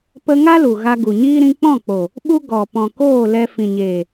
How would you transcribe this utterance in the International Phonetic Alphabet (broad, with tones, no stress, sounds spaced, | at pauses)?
p ə˧ ŋ a˦ l u˨ ɣ a˧ ɡ u˨ ɲ iː˦ ɾ ĩ˧ k͡p ɔ̃˦˨ k͡p o˨ | ɓ u˦ ɡ ɔ˨ p ɔ̃˨ k oː˦˨ l ɛ˧ f ĩ˨ ɲ eː˨